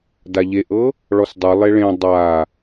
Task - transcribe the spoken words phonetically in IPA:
d a ʎ e ʔ ɤ | ɭ ɔ s dˤ ɯ lˠ e ɭ ẽ dˤ a

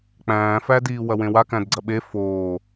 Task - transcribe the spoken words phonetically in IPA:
k͡p æ̃ː f æ d iː w ɐ w ẽ w a k æ̃ d ɡ͡ǀ ɐ ɓ e f oː

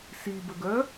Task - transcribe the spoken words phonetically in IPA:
s i b ə ɡ œ

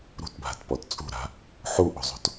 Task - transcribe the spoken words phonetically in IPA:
ɾ ṳ t bʱ a̤ t p ɔ t t͡sʼ ṳ ɾ a̤ | ħ u ʔ o̤ zˤ o̤ t

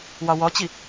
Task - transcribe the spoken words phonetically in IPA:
w ɒ w ɔ t͡ɕ i

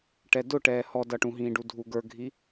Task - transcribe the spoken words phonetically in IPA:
ʈ ɛ d ʊ ʈ ɛː h ɔ d ʌ ʈ ũ ɦ ĩː ɖ u dʱ u ɡ ə˞ ɡʱ i

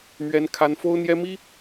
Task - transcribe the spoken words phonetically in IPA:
m ɥ ɛ˦ n kʰ a˦ n f o˦ ʊ̯ n̪ j ɛ˦ m i˦

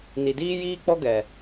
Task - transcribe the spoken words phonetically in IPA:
n i˨ d iː˦ j iː˦ k͡p ɔ˦ ɡ ɛ˨

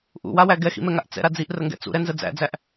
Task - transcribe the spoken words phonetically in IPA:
ʔ ṵ w a w æ ɡ ɛ x ḭ m ɛ ŋ a ʔ t͡s ɛ̰ ɾ a d͡z i ʔ r ə ŋ ɡ ɛ̰ t͡s ṵ ɾ ɛ n z ə d͡z æ̰ d͡z æ ʔ

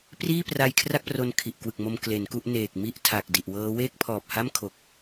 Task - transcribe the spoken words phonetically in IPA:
p r iː˥˩ p r a˧ j kʰ r a˥˩ k̚ p r o˧ n kʰ i˨˩ ʔ k w ɯ˨˩ k̚ m o˧ m k l e˩˦ n k u˥˩ ʔ n eː˨˩ k̚ m i˥˩ ʔ tʰ a˨˩ k̚ d i˨˩ ʔ w ɤː˦˥ w eː˥˩ k̚ pʰ ɔː˨˩ p̚ h a˥˩ m kʰ o˨˩ k̚

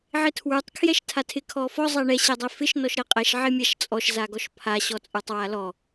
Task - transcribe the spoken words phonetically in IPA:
ʕ ɪ tʰ w ə˞ tˤ kʰ j ɛ ʃ tʰ a tʰ ɪ kʰ ɔ f ɔ zˤ ɛ ɳ ɛ ɕ ɛ dˤ ɛ f ɪ ʃ n ɔ ʃ ɾ ɛ qʼ ɛ ʃ ʕ ɪ mʲ a ʃ t͡sʼ ɔ ʃ z a ɡ ɔ ʃ pʰ a ɕ ɔ t͡sʼ ə˞ tˤ w a l ɔ

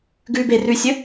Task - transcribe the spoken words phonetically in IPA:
ɡ ʉ b e r ʉ sʲ ɵ

